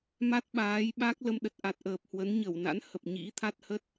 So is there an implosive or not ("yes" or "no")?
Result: yes